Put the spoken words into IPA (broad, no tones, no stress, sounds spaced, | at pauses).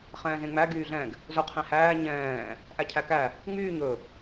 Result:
χ ɛ̃ː z ẽ ŋ͡m æ ɡ yː ɮ ɛ̃ ɡ | z ɵ qʰ ẽ h æː ɲ ɛ̃ː | ʔ æ cʰ æ k æ | ŋ͡m yː ɲ ɵ